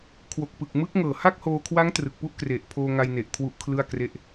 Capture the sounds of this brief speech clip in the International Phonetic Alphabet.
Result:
kʰ w o˨˩ k̚ p ɯ˨˩ k̚ m ɯ˦˥ k̚ ŋ ɤː˨˩ h a˥˩ k̚ h oː˧ kʰ w a˦˥ ŋ t r ɯ˨˩ k̚ p u˥˩ ʔ k r e˨˩ ʔ pʰ oː˧ ŋ a˧ j n e˨˩ ʔ kʰ w u˦˥ ʔ kʰ l ɯ˥˩ a̯ k r e˥˩ ʔ

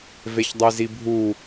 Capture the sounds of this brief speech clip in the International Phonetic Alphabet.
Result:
v e ç dˤ i z i bʱ u

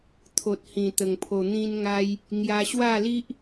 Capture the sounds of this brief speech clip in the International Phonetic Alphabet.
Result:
t̪ʰ o˨ t̚ h ĩ˨˩ t̪ ə˨˩ ŋ pʰ o˨˩ n̪ ĩ˧ n ŋ a˧ j | ŋ j a˧ ɕ w a˥˧ l i˦ ʔ

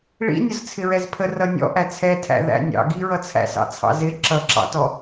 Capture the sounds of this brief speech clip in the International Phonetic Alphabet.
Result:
ɭ ḭ nʲ ʊ z t͡sʰ ɪ ɹ ɛ z pʰ ə r ʌ nʲ ɔ̰ ʔ æ t͡sʰ ɛ tʰ æ̰ ð æ̰ nʲ ɑ̰ ɡ i ɹ ʌ t͡sʰ æ̰ s ɑ̰ t͡sʰ ɑ̰ z ɪ ǁ ʌ ǁ ɑ̰ t ɔ

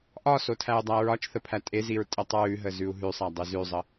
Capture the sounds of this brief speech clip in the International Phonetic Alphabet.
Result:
ʔ ɒ s o tʰ æ u̯ dˤ æ ɹ ɒ t͡ʃ θ ə pʰ æ tʼ e z i ɹ tʼ ə tˤ ɹ ʉ ɦ ə z ʉ u̯ ɦ ʉ sˤ æ dˤ ʉ z ʉ zˤ ə

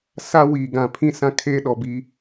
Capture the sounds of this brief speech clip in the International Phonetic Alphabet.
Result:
s a˦ w iː˨ ɡ ã˨ pʰ ĩ˦˨ s ã˦ kʰ eː˦ ɗ ɔ˨ b iː˦

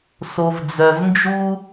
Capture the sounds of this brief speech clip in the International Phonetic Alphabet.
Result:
s o˩ v d͡z œ˩ v n d͡ʒ u˥

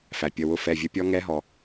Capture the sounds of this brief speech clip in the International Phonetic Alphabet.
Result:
f æ˩ pʲ ə˩˧˩ w ʊ˧˥ f ɛ˩˧˩ vʲ ə˧˥ pʲ ɔ˧˥ ŋ ɛ˧˥ ɦ ɔ˩

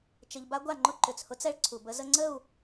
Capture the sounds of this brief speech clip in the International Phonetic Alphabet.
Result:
t͡ʃ ə˧ ʎ b a˦ ɡʷ a˦˨ ŋ͡ǃ ʊ˦ ǃ ʏ˨ t͡s h ʊ˦ t͡s ɛ˦ ɭ ǀʰ u˨ b ə˦ z ə˧ ŋ͡ǀ ə˦˨ u̯

